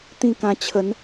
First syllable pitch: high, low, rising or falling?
falling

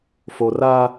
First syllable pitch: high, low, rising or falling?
low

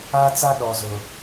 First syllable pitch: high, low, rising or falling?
high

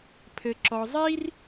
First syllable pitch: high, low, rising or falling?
low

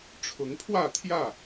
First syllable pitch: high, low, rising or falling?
rising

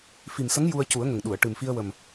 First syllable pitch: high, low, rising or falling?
low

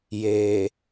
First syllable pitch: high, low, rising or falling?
low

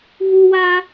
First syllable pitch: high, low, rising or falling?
high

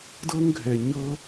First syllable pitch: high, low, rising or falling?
high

